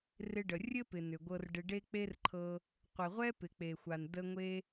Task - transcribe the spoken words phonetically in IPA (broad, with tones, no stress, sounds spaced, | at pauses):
r ɪ˧ ɖ ə˨ rʲ ɘ˦ p ɪ˨ n ʏ˨ ɡʷ ɤ˧ r ɖ ɪ˧ ɖ e˦ k͡p e˦ r ǃʰ ɤ˧ | qʷ ɪ˨ ʁʷ ɛ˦ p ɪ˨ k͡p e˨ xʷ a˨ n d ə˦ ŋʷ e˦